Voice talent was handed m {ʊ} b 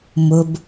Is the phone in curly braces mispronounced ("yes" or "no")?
no